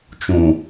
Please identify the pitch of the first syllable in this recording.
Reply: low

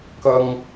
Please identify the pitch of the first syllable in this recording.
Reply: high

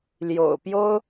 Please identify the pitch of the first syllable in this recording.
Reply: low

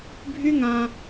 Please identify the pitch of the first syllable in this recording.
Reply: high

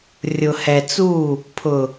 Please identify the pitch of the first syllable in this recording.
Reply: low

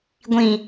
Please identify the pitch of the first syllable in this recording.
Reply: low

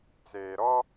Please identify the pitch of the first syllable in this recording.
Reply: low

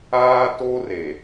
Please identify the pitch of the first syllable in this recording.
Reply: high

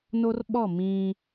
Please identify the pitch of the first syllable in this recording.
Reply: high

